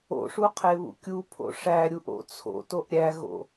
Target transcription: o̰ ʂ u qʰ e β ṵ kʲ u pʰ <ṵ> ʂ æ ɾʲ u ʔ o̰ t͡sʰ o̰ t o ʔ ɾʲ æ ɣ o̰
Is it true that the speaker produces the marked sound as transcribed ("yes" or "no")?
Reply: no